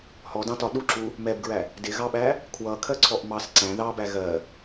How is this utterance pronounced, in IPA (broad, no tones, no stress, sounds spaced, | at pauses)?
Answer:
h ɔ d ɑ̃ t ɒ ɗ u ǁ u | m ɛ b ɡ ɹ æ | d ɪ ɣ ɑ ɓ æ | kʰ w ʌ kʰ ɜ ǀʰ ɔ ʔ m ɑ s ǀ æ̃ ð ɑ b æ ɣ ɜ